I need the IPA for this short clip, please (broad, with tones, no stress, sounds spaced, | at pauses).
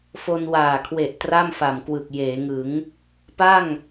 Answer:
f o˧ n w aː˨˩ kʰ w e˨˩ ʔ t r a˥˩ m f a˨˩ m k w ɯ˨˩ k̚ j eː˩˦ ŋ ɯ˩˦ ŋ | p a˥˩ ŋ